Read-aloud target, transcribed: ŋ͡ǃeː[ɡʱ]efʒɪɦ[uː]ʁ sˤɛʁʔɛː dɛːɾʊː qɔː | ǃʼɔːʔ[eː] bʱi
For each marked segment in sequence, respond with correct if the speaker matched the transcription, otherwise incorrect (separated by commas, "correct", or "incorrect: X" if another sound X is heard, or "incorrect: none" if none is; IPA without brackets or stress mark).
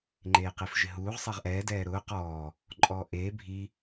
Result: incorrect: q, correct, correct